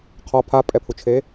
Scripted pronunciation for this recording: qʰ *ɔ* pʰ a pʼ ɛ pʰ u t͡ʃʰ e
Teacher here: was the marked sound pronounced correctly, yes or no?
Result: yes